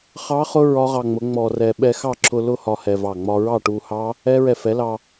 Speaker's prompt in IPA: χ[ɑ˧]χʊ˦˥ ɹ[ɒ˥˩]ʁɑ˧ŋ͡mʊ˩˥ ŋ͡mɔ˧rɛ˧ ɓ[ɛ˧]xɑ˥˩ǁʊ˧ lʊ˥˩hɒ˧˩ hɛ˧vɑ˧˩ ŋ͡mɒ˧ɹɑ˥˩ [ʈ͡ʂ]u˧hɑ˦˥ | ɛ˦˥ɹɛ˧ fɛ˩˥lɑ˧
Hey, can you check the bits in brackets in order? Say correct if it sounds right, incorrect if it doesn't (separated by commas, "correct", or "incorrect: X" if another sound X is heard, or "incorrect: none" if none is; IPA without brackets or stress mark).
incorrect: ɑ˦˥, incorrect: ɒ˦˥, correct, incorrect: ʈ